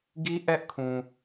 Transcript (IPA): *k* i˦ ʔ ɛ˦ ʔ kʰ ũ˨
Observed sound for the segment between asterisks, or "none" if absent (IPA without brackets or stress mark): ɡ